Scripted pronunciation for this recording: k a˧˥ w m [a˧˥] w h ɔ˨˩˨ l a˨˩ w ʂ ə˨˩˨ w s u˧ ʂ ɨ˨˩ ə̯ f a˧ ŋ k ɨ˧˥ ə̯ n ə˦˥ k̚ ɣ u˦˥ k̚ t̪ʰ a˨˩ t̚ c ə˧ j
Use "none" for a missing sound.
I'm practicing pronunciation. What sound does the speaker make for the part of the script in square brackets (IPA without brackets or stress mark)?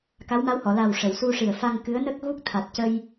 a˧˥